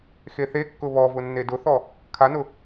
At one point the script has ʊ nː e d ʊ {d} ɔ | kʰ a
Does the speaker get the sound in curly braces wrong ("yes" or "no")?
yes